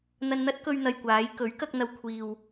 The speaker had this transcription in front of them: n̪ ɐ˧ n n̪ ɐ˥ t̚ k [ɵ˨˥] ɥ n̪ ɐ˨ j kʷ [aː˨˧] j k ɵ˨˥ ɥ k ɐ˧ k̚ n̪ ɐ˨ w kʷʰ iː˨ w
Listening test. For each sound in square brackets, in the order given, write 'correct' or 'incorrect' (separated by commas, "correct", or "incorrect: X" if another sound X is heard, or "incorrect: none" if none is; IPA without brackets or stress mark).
incorrect: ɵ˧, correct